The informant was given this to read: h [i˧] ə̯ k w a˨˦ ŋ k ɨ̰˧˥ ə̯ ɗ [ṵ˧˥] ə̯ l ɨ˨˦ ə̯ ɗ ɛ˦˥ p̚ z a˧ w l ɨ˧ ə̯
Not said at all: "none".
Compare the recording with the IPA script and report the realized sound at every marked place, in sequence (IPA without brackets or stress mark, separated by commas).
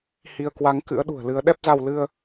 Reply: i˧, ṳ˨˩